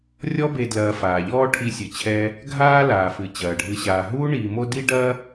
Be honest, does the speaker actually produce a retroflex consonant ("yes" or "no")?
yes